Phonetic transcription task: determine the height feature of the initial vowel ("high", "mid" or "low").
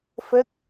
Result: mid